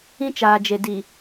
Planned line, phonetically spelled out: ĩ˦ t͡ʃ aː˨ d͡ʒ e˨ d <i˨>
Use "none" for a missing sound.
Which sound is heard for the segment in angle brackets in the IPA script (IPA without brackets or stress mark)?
i˨